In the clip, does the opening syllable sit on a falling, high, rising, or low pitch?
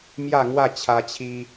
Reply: falling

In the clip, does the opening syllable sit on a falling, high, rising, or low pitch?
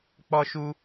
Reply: high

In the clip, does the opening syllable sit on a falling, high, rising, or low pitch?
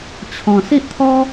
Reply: low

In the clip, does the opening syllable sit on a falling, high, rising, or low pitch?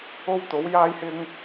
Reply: high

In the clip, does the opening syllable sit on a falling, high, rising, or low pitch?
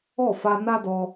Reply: falling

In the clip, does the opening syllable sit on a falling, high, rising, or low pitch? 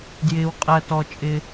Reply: low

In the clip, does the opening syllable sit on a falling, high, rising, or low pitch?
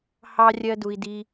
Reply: high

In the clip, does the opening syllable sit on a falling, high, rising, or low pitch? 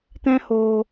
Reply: high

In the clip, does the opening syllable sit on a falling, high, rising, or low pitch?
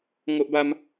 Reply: high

